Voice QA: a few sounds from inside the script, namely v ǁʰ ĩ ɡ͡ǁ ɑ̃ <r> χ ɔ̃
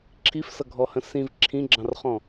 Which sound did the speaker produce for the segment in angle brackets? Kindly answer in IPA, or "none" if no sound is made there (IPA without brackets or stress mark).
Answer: r